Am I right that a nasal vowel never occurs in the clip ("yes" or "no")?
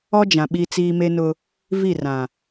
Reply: no